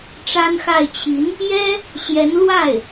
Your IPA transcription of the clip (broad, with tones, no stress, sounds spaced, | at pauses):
ʈ͡ʂ a˥ n x a˥˩ ɪ̯ t͡ɕʰ i˧˥ n | j ɛ˥ | ɕ j ɛ˧˥ n l w a˥˩ ɪ̯